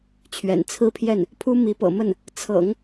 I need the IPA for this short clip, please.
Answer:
t͡ɕʰ ɥ ɛ̰˨˩ n t͡sʰ ɹ̩˥ pʰ j ɛ˥˩ n | pʰ u˥ m i˧˥ p ɤ̰˨˩ m ə˥˩ n | t͡sʰ ɤ̰˨˩˦ ŋ

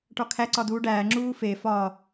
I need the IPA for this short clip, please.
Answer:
ʈ ɒ kʰ æ ǀ ɒ d uː ɖ æː ŋ͡ǁ uː f e f ɒ

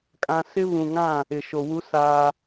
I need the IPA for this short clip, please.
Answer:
kʼ ã˦ s ɪ˦ β ũ˨ ŋ ã˦˨ | ɪ˨ ʃ o˨ w u˦ s aː˦

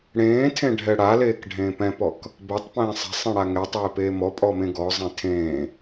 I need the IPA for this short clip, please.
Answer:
ɽ ẽː tʰ ẽ ɖʱ ɛ ɽ a l eː k ɖʱ ẽː p ɛ̃ p ɔ k | b ɛ tˤ p ẽː sˤ ɛ̤ sˤ ẽ ɽ a ŋ ɛ tˤ eː p eː m ɔ pʼ ɔ m ẽ ɡ ɔ zˤ ẽ tʰ ẽː

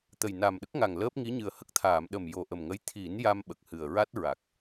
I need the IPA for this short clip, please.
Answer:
t̪ ə˨˩ j n a˨˩ m ɗ ə˦˥ k̚ ŋ a˨˩ ŋ l əː˦˥ p̚ ŋ i˧˥ ɲ ɨ˨˩ ə̯ h ə˦˥ k̚ t̪ʰ aː˨˩˨ m ɗ ə˨˩ m j o˨˩ ʔ ə˨˩ m ŋ ə˧˥ j t̪ʰ i˨˩˦ n j a˧ m ɓ ə˨˩ k̚ h ɨ˨˩ ə̯ ɹ a˦˥ t̚ ɹ a˨˩ k̚

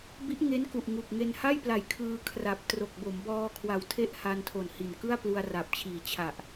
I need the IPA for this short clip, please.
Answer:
b i˦˥ ʔ ŋ e˦˥ n k u˨˩ ʔ ŋ u˨˩ k̚ ŋ e˧ n h a˥˩ j p l a˨˩ j kʰ ɯː˧ kʰ r a˨˩ p̚ t r o˨˩ k̚ b o˩˦ m b ɔː˧ kʰ w a˨˩ w tʰ e˥˩ ʔ h a˧ n tʰ o˨˩ n h i˨˩ n k ɯ˥˩ a̯ p l u˧ a̯ r a˨˩ p̚ t͡ɕʰ iː˨˩ t͡ɕʰ a˨˩ ʔ

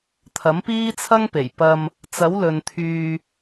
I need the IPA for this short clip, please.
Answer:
t̪ʰ ɐ˨˥ m p iː˥ t͡sʰ ɐ˥ ŋ p e˨˩ j p ɐ˧ m | t͡s ɐ˨˥ w l ɵ˨ n t̪ʰ yː˧

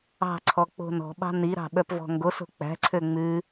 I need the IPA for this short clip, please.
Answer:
ɑ̤ ǀʰ ɔ k͡p o̤ n ɔ̤ ɓ ɑ̤ n i ɾ ɑ̤ ɓ œ p v ɔ̤ ŋ ɡ o s o̤ k͡p æ̤ ǀʰ ø ŋ͡m ʉ

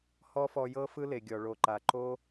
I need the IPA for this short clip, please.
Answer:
h ɔ˦ f ɔ˧ j ɤ˦ f ɯ˦ l e˨ ɡʲ ɔ˨ ɭ o˨ ǃ a˨ ǃ o˦

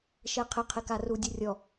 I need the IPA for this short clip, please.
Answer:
ʃ ɛ qʰ ɪ qʰ ɪ k a r u dʲ ʊ rʲ ɔ

